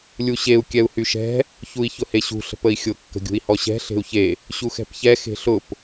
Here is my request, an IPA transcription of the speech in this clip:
lʲ u ɕ e u̯ kʲ ɛ u̯ h y ʃ ɛ̤ | ç u i̯ ç ʊ h e ɕ ṳ ɬ ə̤ p ə i̯ xʲ ʊ kː ə̤ ɡʲ ṳ i̯ h ɔ ɕ ɛ̤ ɬ e̤ u̯ ç e | ɕ u x ɛ̤ p ç ɛ x e̤ ɬ ʊ p

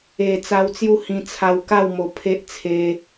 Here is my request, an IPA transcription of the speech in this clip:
e˧ t͡s a˧ w t͡s j u˥˧ h ĩ˧ t͡sʰ a˧ w k a˥˧ w m o˧ pʰ e˦ ʔ t͡sʰ e˧

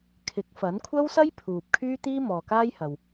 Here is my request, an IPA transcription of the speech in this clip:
kʰ ɪ˨˥ k̚ f ɐ˨˥ n kʷʰ ɐ˥ w s ɐ˥ j pʰ uː˨ p̚ kʰ yː˥ t̪ iː˥ m ɔː˨ k aː˥ j h ɐ˨ w

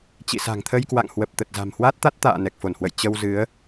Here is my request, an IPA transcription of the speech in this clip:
t͡ɕ ḭ˧˨ s a̤˨˩ ŋ t̪ʰ ə˧ j k w a̰˧˨ ŋ h w ə˨˩ p̚ t̪ ə˨˩ t̚ z a̤˨˩ m h w a˦˥ t̚ t̪ a˦˥ t̚ t̪ a̰ː˧˨ n ɛ˨˩ k̚ f o˧˩ n h w ə̰˧˨ j t͡ɕ ə˧ w z ɨ˨˦ ə̯

